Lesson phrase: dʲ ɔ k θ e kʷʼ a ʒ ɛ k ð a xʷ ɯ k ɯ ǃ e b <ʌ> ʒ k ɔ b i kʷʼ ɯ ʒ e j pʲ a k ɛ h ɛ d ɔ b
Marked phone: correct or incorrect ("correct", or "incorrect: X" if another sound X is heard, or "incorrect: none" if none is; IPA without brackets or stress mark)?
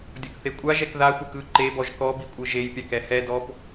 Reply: incorrect: ɔ